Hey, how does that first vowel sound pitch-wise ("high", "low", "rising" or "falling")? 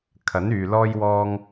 rising